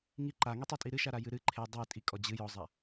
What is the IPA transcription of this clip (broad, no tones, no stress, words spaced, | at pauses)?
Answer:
ŋi ǃaŋitˤatʼi ɾɨʃaɾa jɨɾɨ ǃʰe dˤɨ tʼikʼɔ d͡ʑɨ jɔzˤa